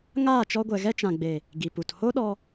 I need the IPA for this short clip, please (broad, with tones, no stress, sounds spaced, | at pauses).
ŋ aː˦˨ t͡ʃ ɔ˧ ɡʷ ɛ˨ ɣ ɛ˦ t͡ʃ ã˨ ɡ͡b e˨ | ɡ i˨ p u˨ t h o˦ ɗ ɔ˧